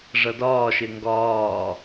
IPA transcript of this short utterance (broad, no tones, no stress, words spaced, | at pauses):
ʐʌdɒːʃɪ ŋɡɒː